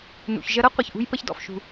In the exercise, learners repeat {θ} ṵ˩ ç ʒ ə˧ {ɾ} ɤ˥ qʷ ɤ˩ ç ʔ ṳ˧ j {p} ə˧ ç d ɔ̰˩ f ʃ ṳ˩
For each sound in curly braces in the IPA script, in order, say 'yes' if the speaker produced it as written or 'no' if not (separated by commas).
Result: no, yes, yes